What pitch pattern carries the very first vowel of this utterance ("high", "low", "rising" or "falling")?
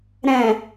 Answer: low